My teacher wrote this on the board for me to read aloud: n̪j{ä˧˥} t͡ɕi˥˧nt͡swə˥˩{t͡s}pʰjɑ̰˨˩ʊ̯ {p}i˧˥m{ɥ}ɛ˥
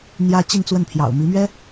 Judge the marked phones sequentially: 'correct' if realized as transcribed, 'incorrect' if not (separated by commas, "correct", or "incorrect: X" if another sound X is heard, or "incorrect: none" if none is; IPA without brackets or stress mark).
incorrect: ä˥, incorrect: n, incorrect: m, correct